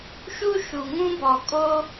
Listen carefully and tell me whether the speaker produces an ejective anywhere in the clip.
yes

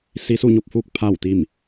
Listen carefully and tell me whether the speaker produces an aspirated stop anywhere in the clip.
yes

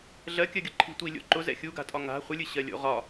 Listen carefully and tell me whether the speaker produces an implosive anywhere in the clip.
no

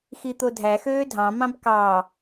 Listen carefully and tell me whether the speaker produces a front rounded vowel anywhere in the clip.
yes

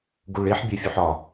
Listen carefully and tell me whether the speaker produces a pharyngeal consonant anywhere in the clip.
yes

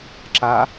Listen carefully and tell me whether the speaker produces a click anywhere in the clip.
yes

